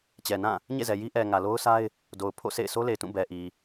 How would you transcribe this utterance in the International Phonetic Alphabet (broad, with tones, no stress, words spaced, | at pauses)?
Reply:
t͡ɕɛ˨nã˦˨ | ɲḛ˦˨zɛ˨ji˦ ʔɛ˨ ŋä˨lo˦ʊ̯sa˦ɪ̯ | do˨ʊ̯ pʰo̰˦˨sḛ˦˨ɪ̯ sʰo˦le˨ɪ̯tũ˦˨ bɛ˨ʔi˨